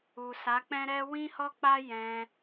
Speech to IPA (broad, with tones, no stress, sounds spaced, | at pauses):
u˨ s a˨˦ k͡p ɛ̃˦ ɾ ɛ˦ w ĩ˦ h ɔ˦ k͡p a˦ j ɛ̃˧